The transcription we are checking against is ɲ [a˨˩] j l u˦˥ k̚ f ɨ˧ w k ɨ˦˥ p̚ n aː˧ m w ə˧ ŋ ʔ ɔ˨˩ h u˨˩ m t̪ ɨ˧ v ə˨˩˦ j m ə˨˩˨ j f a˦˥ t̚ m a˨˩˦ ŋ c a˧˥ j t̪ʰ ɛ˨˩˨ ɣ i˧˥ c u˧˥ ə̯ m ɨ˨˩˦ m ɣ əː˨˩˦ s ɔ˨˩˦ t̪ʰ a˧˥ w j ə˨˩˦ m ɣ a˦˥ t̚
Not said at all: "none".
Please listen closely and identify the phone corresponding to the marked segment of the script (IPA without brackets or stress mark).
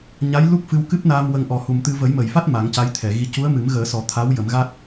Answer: a˧˥